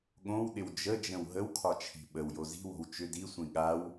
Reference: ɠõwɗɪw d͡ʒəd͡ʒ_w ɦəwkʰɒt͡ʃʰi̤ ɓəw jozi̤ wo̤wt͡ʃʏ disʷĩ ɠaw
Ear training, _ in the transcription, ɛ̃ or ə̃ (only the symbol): ə̃